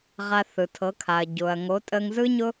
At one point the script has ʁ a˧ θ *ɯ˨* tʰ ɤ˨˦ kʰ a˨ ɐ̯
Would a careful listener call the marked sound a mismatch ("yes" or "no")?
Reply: no